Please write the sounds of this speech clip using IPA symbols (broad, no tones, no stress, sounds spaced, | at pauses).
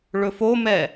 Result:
ɭ ɵ f o m ɛ